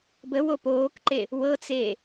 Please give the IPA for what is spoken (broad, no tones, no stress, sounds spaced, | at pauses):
b ə w o p oː k ǃ e | w ɤ t͡s e